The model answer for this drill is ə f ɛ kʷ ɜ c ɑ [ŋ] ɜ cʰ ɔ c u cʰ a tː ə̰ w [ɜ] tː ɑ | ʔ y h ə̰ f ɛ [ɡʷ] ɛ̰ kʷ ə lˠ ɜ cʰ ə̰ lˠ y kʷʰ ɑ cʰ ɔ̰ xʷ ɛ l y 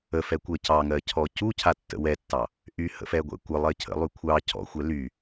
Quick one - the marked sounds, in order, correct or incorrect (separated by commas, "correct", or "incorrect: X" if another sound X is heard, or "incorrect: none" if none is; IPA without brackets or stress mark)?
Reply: correct, incorrect: ɛ, correct